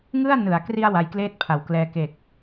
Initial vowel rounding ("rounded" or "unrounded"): unrounded